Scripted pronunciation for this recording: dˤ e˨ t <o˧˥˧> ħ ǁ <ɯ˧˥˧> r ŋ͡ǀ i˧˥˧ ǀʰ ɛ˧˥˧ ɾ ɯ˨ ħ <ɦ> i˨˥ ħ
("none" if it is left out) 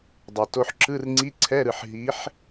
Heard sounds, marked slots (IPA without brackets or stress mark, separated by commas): o˧˥˧, ɯ˧˥˧, ɦ